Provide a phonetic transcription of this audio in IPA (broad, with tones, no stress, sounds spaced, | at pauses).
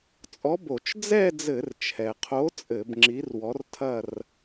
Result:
t͡sʼ ɔ˨˥ b o˧˩˧ t͡ʃ d͡z ɛ˥˧ d͡z ɘ˧˩˧ r t͡ʃʰ ɛ˩ qʰ o˨˥ t͡sʼ ɘ˧˩˧ b ŋ͡ǁ i˨˥ r w ɔ˨˥ r tʰ ɐ˥˧ r